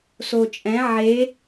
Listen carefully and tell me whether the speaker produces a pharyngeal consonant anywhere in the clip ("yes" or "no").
yes